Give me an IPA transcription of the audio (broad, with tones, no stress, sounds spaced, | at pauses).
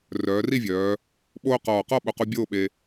r œː˩˧ r i˥˧ vʲ œː˩˧ | ɓ oː˥ q ɔː˧˩ q ɔ˥˧ ɓ o˧˩ q u˧ bʲ oː˥˧ ɓ e˧